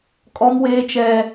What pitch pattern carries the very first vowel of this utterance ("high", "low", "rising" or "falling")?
high